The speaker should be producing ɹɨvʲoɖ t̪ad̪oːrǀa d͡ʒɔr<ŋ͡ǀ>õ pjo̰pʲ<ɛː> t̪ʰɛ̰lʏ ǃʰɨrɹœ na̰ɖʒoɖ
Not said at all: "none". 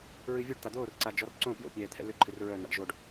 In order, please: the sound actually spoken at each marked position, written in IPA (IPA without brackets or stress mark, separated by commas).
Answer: ǀ, ɛː